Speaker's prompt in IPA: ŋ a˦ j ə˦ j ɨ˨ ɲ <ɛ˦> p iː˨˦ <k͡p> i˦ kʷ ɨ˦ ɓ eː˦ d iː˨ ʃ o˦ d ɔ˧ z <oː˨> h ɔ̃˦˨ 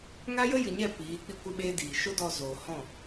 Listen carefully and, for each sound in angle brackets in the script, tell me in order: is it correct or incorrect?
incorrect: ɛ˦˨, correct, correct

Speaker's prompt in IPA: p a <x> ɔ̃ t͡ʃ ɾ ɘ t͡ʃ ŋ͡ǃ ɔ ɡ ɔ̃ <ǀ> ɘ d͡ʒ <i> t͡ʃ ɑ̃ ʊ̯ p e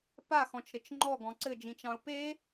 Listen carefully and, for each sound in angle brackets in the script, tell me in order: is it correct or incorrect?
correct, correct, incorrect: ĩ

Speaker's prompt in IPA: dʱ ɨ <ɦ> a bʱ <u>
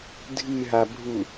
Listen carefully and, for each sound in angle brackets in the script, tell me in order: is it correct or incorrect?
correct, correct

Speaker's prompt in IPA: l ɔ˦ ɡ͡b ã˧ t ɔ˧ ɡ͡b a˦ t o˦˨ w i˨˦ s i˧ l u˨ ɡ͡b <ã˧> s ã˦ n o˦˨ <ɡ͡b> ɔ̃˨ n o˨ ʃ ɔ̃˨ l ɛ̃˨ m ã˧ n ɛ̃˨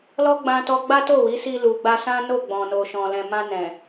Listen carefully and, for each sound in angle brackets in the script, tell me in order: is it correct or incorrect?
incorrect: a˧, correct

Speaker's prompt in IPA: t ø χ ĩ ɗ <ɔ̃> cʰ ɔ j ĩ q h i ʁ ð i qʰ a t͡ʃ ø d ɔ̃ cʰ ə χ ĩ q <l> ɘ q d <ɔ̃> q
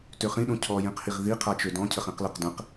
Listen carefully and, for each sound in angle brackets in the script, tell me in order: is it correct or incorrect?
incorrect: õ, correct, incorrect: ə̃

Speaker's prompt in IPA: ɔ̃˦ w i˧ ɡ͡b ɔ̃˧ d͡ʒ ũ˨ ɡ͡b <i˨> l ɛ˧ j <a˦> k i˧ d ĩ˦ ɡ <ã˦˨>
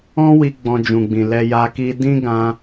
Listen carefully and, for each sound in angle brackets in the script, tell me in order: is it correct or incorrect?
incorrect: ĩ˨, incorrect: a˧, incorrect: ã˧

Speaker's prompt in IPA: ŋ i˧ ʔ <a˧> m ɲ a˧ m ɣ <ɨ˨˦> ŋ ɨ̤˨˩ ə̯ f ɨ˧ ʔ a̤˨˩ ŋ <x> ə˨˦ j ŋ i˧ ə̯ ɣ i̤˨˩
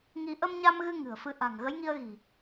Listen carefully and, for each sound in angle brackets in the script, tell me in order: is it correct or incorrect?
incorrect: ə˧, incorrect: ɨ˧, incorrect: ɣ

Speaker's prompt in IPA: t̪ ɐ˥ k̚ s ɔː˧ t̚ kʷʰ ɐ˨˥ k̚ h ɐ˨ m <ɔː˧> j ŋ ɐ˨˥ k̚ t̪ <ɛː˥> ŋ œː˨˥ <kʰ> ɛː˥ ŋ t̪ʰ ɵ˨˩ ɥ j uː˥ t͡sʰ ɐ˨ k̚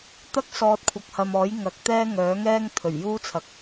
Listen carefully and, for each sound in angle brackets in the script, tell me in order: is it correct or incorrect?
incorrect: ɔː˨˥, correct, incorrect: ŋ

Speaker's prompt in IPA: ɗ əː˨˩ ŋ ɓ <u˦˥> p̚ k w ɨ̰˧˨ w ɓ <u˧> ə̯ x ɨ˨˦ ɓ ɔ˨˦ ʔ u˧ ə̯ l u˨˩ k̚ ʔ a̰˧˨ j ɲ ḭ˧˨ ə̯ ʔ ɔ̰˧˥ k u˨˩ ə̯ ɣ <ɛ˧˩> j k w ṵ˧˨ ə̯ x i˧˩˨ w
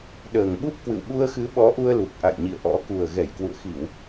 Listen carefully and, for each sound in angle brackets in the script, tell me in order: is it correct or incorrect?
correct, correct, correct

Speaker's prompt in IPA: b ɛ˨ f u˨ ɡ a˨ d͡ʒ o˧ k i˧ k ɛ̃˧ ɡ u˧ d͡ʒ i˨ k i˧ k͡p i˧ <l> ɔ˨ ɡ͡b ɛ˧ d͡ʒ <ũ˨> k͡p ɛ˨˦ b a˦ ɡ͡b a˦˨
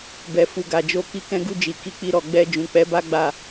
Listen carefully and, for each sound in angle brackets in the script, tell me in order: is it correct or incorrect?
incorrect: ɾ, correct

